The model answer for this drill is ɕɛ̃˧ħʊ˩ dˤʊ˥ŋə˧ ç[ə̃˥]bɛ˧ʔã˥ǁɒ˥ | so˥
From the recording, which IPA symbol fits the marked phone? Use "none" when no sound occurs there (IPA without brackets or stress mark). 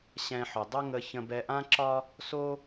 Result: ə̃˧